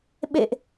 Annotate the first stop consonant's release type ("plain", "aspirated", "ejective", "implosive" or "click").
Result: implosive